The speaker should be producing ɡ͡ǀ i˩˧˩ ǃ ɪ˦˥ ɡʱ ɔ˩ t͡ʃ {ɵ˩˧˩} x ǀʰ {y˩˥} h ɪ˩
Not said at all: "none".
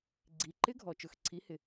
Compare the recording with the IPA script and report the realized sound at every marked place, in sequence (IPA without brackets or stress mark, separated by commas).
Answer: ɵ˩˧˩, i˩˥